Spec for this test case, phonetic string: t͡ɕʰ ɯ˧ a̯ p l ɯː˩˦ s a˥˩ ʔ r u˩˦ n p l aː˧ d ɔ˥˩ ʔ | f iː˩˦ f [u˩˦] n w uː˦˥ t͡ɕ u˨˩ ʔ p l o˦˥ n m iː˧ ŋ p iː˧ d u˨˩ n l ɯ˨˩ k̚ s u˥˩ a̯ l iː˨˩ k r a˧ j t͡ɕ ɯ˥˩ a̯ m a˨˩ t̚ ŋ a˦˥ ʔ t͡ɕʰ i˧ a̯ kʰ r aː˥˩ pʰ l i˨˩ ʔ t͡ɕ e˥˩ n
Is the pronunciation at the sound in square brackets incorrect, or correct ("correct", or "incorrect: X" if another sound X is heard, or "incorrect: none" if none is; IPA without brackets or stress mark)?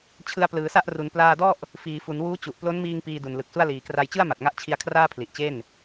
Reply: correct